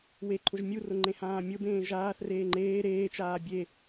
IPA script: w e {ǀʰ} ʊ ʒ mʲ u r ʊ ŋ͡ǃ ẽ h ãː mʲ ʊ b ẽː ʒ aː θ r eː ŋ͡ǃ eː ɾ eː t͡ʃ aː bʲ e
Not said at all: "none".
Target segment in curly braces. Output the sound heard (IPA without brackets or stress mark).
ǃʰ